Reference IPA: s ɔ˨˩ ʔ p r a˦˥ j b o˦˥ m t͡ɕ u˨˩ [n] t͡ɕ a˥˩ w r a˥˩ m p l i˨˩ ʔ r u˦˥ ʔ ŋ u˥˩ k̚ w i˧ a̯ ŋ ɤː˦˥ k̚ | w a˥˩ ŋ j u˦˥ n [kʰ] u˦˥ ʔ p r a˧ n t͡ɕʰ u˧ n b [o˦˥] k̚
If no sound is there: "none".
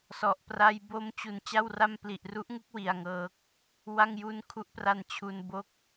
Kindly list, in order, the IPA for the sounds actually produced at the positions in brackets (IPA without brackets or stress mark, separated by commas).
n, kʰ, o˦˥